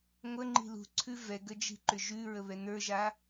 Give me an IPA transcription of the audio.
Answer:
ŋʷ ə ŋ͡ǃ i̤ l ṳ ǀʰ ʉ v ɛ ɡ ə d͡ʒ i̤ ǃ ʏ ʒ ʉ ɹ ə β ɛ n ə˞ ʒ a

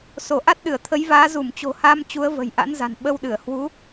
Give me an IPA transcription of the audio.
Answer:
s o˧˩ ʔ a˦˥ t̚ ɗ ɨ˧˩ ə̯ t̪ʰ ə˨˦ j v aː˨˦ z u˧˩ m t͡ɕ o̤˨˩ h a˧ m t͡ɕ u˨˦ ə̯ v ə̤˨˩ j ʔ a̰˧˥ n z a̤˨˩ n ɓ ə˧ w ɗ ɨ˧˩ ə̯ h w u˨˦

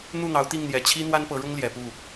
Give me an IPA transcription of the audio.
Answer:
n̪ u˥˨ n̪ ɑ˨˦ ʊ̯ t̪ i˥˨ ŋ n̪ j ɛ˨˩ t͡ɕʰ i˦ n̪ w a˦ n p ɤ˨˦ ɻ ʊ˦ ŋ l j ɛ˨˩ p u˥˨

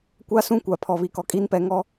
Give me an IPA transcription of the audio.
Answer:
kʷ a˦ s ũ˦ kʷ a˨ pʰ ɔ˨ β i˨ k ɔ˨ kʼ iː˦ n p ɛ˨˦ ŋ ɔ˦

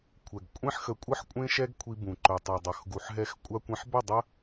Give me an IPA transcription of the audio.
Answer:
kʷʰ ɛ˨ ɡ kʷʼ ẽ˦ ħ x ə˧ kʷʼ ə˦ ħ kʷʼ ẽ˦ ʃ ɛ˦ ɡ kʷʰ i˧ b ũ˨ ǃ ɵ˨ tˤ ɛ˨ dˤ œ˨ x ɡ u˨ ħ ɦ ɛ˧ x kʷʼ a˧ kʷ ẽ˧ ħ b ə˦˨ dˤ ə˦

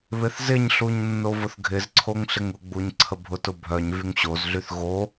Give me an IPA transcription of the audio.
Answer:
β ɪ θ z ɪ ɲ ɬ u ɲ nː o v ʊ θ ɡʱ ɪ z ǀʰ o ŋ ɬ ɪ ŋ ʊ ɡ͡b u ɲ ǀʰ ə bʱ ʊ t ʊ bʱ œ ɲ v y ŋ ɕ o z ɮ y θ ɣ o

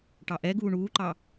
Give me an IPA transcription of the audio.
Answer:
ʈ ɑ ʔ ɛ ɡ uː ɳ uː ǃ ɑ

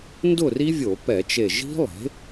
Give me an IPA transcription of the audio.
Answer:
n d ʊ˥˨ r i˦˥ vʲ o˧˩˧ p ɛ˧˩˧ t͡ʃ e˧˩ ʒ i̤˦˥ lˠ e̤˩˥

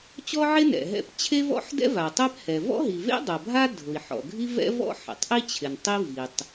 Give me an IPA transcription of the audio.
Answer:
t͡ɕ ɔ˥ ʕ e˥ n ɛ̰˩ ɦ ɛ̰˥ p t͡ɕʰ e˥ v ɔ̰˥ ħ d ɛ̰˥ v a˩ tˤ ɛ˥ p h ɛ˩ v ɔ̰˥ ɦ i˩ v ḛ˥ dˤ a˩ bʱ a˥ dʱ ʊ˩ i̯ ħ ɔ̰˩ ɡʱ i˥ v ɛ̰˥ v ɔ̰˥ ħ ɛ̰˩ tˤ ʔ i˥ t͡ɕʰ ɪ˩ n tˤ i˥ v i˩ tˤ

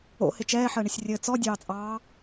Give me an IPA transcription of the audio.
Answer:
o̰ h ɪ t͡ʃ ɛː ħ əː ɳ ɪ sʲ rʲ ɘ t͡s ɔ dʲ ɑː t͡sʼ ɑː

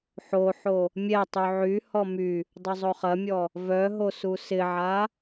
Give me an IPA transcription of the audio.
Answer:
ħ o ħ o | mʲ ɛ tˤ y ʕ y h ɔ m y | dˤ ʊ zˤ o χ ɐ mʲ ɔ | v œ ɦ o s u s ɪ ʕ a

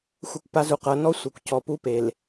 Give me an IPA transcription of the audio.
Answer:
xʷ ɛ˦ kʷ p a˦ z u˨ q ɤ˨˦ n ɔ˦ sʷ ɤ˨ kʷ c ɔ˨ p u˦ p e˨ l

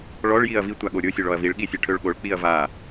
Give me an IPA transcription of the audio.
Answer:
ɭ ɔ ɭ j i ɐ̯ v i tʷ a ɠ o ɾʲ o sʲ ɔ ɭ ɔ ɐ̯ v i ɭ ɠ i sʲ ə ʈʰ ø ɭ ɠ o ɭ k͡p i ɐ̯ v a

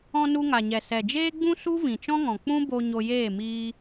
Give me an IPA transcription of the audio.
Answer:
ɔ̃˧ n u˧ ŋ a˨ ɲ ɛ˨ s ɛ˨ d͡ʒ eː˦ ɡ͡b ũ˦ s u˦ v ĩ˨ t͡ʃ ɔ̃˦ ŋ ɔ̃˨ k͡p ũ˦ b o˧ ɲ o˧ j eː˦˨ m iː˧

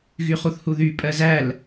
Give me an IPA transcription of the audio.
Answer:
ɣ y χ u θ h u ð y pʼ ɜ z æ l

